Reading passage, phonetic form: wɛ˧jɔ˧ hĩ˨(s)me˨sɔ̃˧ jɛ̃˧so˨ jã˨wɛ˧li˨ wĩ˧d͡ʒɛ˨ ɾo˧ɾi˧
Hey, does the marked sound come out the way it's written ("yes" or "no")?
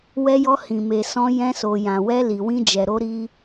no